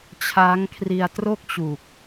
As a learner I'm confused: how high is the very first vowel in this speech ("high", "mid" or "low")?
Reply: low